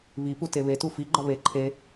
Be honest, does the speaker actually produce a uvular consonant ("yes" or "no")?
no